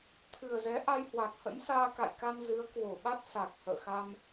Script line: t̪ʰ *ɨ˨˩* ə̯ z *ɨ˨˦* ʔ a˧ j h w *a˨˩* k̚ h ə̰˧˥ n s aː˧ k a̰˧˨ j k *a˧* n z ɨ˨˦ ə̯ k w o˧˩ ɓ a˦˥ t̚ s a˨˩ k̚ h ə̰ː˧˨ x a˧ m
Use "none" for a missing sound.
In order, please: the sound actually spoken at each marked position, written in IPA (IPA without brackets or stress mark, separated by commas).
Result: ɨ˨˩, ɛ˨˦, a˨˩, a˧